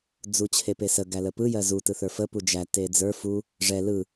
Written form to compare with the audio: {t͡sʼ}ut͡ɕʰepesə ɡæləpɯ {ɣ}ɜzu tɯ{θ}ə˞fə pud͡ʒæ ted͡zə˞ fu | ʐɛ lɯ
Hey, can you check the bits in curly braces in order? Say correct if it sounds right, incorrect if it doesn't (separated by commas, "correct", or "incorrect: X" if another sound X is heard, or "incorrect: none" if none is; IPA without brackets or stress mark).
incorrect: d͡z, incorrect: j, correct